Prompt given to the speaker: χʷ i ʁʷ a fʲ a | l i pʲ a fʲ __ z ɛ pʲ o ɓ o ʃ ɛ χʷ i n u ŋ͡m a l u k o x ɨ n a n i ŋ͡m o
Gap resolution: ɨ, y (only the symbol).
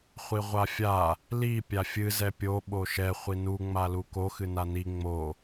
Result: ɨ